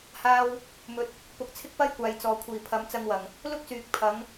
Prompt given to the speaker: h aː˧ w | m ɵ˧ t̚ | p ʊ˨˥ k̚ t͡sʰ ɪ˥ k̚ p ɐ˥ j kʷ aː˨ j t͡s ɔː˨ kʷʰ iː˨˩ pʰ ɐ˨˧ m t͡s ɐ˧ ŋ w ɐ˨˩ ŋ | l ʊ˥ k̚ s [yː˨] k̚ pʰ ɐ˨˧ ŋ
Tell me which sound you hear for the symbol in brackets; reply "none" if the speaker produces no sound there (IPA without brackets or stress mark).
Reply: yː˨